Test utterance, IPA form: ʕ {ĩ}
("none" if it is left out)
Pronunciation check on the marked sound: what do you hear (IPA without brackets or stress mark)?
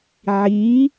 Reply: i